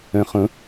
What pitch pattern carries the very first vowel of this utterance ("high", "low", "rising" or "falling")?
low